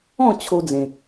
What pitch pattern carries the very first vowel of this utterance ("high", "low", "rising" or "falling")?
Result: falling